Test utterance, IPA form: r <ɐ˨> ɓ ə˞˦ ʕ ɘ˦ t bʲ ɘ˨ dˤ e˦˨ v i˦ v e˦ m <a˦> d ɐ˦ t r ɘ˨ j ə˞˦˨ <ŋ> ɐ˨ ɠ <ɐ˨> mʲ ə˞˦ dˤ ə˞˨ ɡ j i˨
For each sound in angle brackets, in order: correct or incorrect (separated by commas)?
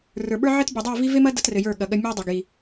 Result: incorrect, incorrect, incorrect, incorrect